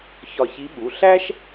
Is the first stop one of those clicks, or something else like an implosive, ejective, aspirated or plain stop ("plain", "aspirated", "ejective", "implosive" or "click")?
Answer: implosive